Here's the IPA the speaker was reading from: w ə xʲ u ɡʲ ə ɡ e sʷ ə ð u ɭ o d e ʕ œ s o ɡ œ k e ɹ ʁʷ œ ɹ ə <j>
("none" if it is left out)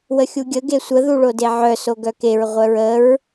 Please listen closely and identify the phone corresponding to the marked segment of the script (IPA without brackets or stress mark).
ɹ